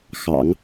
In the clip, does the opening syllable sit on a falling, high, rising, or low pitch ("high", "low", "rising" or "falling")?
low